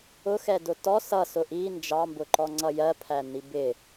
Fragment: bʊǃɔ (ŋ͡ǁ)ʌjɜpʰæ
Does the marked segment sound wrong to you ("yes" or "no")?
yes